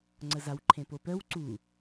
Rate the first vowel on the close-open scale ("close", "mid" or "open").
mid